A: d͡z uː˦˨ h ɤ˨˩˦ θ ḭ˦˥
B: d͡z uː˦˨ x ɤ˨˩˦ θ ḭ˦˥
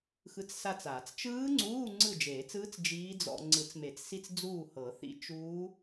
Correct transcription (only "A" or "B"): A